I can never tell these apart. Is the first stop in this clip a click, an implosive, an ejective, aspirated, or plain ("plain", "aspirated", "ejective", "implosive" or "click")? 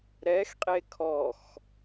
ejective